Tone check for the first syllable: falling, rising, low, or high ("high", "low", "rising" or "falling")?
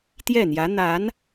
falling